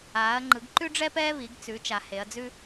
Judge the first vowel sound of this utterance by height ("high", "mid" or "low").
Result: low